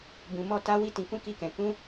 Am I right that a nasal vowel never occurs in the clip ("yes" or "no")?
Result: no